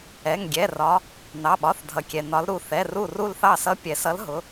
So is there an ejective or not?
no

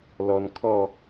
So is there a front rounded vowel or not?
no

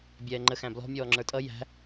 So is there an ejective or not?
yes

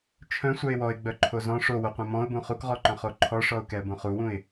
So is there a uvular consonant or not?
yes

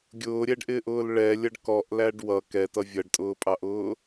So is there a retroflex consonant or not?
yes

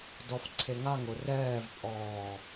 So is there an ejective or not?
yes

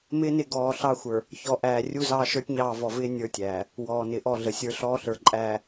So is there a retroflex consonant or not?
no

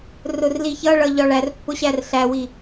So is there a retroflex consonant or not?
yes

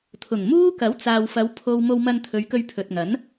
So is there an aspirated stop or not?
yes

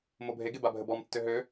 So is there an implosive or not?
no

